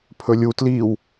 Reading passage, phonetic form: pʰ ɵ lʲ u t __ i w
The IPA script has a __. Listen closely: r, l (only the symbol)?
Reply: l